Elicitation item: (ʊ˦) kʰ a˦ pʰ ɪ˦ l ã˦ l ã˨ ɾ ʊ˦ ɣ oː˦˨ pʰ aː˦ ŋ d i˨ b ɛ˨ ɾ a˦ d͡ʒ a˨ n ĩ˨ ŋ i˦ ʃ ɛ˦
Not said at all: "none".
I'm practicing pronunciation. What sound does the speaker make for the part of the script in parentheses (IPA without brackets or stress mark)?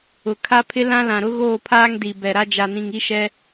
ʊ˨